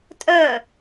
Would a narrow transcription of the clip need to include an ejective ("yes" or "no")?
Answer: yes